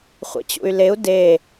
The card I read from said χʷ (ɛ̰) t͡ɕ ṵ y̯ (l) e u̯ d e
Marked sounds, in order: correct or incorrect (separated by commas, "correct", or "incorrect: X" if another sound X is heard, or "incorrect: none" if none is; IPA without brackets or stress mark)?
correct, correct